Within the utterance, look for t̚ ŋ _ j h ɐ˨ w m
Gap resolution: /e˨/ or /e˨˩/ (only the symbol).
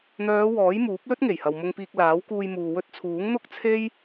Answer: e˨˩